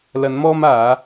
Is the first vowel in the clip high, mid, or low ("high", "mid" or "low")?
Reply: low